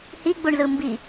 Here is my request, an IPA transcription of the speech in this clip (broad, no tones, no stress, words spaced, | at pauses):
hiɡ͡buɳzɯ mbi